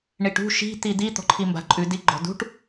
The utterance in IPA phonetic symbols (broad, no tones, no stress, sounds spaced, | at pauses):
ɳ i ʈ ṳ ʃ i̤ t̪ i d̪ i t̪ ɔ̤ ǃʰ i m b a̤ ǃʼ ʉ d i ɡ͡ǃ ɔ̤ d ṳ ʈ